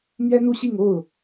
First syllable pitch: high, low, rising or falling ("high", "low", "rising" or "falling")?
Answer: high